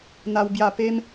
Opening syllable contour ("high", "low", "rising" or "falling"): high